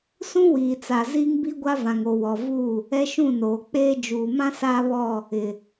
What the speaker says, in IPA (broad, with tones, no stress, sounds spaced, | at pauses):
s ũ˦ w iː˨ t͡s a˨ z iː˦ ŋ b i˦ ɡʷ a˦ v ã˨ ŋ o˨ w ɔ˨ v u˦˨ | ɛ˦ ʃ ũ˦˨ n oː˨ k͡p eː˦ d͡ʒ uː˨ m ã˦ s aː˦ β ɔ˦˨ | ɪ˨